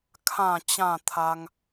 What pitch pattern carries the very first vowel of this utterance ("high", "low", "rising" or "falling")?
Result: low